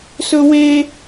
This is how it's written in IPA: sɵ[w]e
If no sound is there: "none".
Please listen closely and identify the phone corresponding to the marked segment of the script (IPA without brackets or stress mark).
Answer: w